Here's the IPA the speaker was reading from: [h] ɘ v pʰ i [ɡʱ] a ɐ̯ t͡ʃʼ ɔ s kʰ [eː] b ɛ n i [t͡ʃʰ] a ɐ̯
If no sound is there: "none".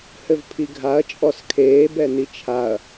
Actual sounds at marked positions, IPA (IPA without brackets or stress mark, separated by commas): h, ɡʱ, eː, t͡ʃʰ